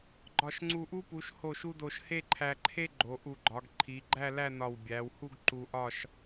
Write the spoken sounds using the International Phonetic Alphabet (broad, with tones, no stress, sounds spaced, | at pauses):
ɡ͡ǃ ɒ˧˩ ʃ ŋ͡ǀ u˧˩ ʔ u˥ p u˩˧ ʃ h o˧˩ ʃ u˧ d o˧ ʃ h e˥˧ ǃʰ æ˧ ǃʰ e˥ ɡ͡ǃ o˩˧ ʔ u˧˩ ɡ͡ǃ ɒ˩˧ ɡ ǃʰ i˩˧ ɡ͡ǃ æ˥˧ l æ˥˧ n ɒ˧˩ w bʲ æ˩˧ w h u˥˧ ɡ ǃ u˧ ʔ ɒ˥˧ ʃ